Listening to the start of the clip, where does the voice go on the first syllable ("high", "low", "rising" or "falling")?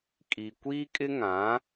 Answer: low